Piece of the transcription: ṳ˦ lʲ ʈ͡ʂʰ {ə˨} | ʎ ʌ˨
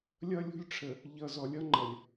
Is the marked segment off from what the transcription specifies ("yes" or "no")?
no